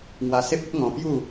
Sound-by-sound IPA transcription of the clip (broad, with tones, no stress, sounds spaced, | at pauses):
ŋ w a˧ s e˦ p̚ ə˦ t̚ ŋ ɔ̃˧ p j u˥˧